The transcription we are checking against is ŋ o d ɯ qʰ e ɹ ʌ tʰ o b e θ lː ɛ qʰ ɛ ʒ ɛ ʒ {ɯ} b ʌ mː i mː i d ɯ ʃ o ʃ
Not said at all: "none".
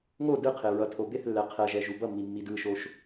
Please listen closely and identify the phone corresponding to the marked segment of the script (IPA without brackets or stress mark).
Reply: u